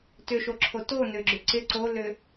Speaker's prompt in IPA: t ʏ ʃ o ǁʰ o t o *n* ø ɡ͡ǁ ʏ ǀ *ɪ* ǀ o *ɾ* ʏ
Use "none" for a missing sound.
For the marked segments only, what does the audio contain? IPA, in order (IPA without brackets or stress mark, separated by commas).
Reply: n, ɪ, l